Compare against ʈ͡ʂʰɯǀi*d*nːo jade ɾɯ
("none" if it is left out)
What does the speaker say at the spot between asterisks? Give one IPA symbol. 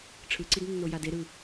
d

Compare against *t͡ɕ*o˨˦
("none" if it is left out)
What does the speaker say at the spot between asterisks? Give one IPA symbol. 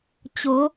t͡ɕ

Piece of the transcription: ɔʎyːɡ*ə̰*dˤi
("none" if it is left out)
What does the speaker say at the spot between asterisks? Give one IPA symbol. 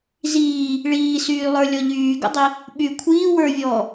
ə̰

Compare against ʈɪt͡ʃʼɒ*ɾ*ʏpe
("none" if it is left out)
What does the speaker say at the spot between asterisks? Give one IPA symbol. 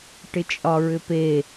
ɹ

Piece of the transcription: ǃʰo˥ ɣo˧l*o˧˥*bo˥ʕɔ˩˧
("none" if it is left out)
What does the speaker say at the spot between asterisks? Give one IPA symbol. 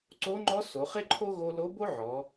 o˧˥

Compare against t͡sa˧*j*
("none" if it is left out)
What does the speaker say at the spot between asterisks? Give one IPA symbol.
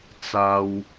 w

